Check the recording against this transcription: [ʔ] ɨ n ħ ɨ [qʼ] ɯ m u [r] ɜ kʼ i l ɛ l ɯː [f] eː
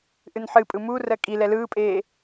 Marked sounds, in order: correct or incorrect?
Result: correct, incorrect: pʼ, correct, incorrect: pʼ

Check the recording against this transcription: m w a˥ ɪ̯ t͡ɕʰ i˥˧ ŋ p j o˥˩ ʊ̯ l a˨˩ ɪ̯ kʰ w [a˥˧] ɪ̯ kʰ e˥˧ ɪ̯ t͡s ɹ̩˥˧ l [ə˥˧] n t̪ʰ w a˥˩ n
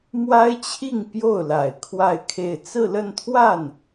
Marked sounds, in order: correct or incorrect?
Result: correct, correct

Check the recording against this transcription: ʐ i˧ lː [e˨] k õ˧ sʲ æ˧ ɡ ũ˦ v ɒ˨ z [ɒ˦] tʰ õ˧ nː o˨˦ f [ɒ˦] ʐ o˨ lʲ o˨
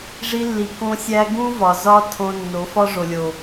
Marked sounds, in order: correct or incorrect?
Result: incorrect: i˨, correct, correct

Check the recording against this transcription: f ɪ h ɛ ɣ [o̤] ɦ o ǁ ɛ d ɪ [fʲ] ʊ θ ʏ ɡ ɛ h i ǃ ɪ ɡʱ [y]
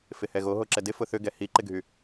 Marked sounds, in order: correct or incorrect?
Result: incorrect: o, incorrect: f, correct

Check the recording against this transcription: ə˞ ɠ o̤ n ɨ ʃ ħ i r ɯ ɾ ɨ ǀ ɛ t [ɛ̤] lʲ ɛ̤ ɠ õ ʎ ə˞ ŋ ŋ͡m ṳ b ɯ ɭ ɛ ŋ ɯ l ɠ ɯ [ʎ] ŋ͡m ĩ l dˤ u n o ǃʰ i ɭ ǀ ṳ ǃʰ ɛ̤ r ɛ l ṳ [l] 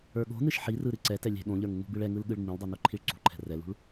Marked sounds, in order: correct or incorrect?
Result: incorrect: ɛ, incorrect: ɭ, incorrect: ɭ

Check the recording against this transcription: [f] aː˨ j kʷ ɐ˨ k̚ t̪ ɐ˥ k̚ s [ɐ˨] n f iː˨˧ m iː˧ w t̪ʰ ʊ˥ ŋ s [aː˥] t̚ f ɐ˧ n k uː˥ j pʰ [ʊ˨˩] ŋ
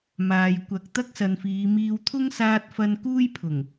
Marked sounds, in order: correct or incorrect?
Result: incorrect: m, correct, incorrect: aː˧, correct

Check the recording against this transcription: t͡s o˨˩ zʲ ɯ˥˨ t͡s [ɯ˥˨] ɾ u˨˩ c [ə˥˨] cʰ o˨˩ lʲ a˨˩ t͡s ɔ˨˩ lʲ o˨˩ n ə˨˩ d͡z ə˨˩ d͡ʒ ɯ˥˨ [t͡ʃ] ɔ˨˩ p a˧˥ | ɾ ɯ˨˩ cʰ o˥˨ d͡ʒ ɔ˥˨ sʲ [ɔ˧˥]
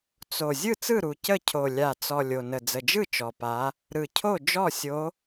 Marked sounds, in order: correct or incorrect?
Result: correct, correct, correct, incorrect: o˧˥

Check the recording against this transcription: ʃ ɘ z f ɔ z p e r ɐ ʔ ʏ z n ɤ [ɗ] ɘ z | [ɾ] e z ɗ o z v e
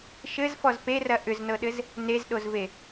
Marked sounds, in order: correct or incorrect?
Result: correct, incorrect: n

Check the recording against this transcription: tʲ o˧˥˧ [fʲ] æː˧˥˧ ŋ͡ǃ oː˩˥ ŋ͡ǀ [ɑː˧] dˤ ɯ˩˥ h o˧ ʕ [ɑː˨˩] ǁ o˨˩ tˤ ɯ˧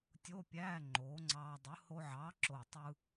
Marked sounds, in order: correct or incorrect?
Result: incorrect: pʲ, correct, incorrect: ɑː˩˥

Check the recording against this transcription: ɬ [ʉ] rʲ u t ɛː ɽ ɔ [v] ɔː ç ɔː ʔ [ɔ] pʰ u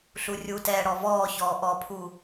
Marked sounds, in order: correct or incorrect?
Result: incorrect: u, correct, correct

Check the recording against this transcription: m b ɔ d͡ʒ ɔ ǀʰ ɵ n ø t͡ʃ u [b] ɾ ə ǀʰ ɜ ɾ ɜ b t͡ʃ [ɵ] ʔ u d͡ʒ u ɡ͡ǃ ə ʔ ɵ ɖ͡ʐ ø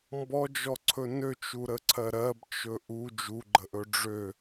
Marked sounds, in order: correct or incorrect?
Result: incorrect: none, correct

